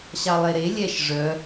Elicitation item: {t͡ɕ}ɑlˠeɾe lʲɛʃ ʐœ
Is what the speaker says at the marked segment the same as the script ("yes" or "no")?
no